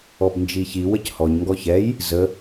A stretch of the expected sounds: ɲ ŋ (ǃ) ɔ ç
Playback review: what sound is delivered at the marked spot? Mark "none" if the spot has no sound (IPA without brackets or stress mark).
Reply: ɡ